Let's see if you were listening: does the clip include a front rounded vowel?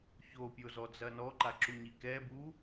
no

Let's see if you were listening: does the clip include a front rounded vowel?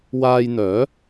yes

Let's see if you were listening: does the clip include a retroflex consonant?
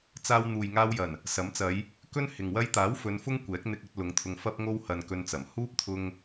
no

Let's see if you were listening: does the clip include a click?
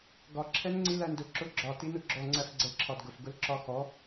yes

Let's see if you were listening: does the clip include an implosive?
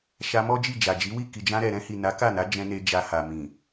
no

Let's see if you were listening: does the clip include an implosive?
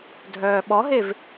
yes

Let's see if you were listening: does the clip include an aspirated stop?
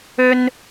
no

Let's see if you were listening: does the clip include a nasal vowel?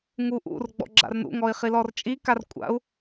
no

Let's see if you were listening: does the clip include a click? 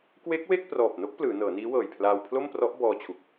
no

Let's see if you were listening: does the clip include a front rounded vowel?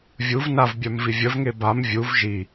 yes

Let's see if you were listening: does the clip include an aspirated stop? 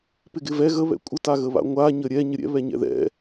no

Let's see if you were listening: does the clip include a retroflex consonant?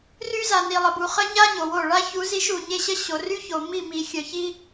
yes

